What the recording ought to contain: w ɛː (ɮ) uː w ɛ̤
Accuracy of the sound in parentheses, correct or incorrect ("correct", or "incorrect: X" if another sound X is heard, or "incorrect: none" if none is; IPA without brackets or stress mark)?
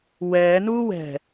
incorrect: n